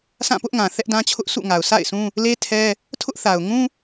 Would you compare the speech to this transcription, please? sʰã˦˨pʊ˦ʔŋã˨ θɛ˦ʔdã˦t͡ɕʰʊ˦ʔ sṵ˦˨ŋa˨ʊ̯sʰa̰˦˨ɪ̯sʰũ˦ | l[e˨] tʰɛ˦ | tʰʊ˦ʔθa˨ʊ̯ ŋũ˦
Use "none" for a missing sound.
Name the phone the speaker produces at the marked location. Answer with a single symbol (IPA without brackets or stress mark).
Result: e˦